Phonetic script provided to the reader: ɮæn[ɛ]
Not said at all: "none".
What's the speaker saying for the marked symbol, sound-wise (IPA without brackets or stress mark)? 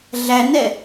ɛ